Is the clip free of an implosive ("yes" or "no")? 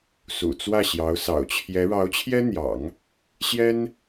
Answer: yes